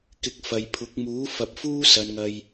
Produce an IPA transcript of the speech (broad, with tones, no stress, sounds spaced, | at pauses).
k ɪ˧ k̚ f ɐ˨ j pʰ ʊ˨˥ k̚ m uː˨˥ f ɐ˨˥ p̚ f uː˥ s ɐ˨˧ n ŋ ɐ˧ j